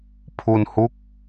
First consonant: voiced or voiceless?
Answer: voiceless